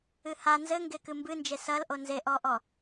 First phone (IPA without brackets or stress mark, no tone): ɨ